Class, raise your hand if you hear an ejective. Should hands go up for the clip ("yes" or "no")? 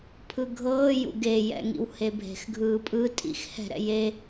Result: yes